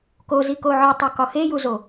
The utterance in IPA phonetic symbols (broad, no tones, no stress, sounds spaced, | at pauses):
k o z i k o ʕ ɒ tˤ a k ɒ x e j u z o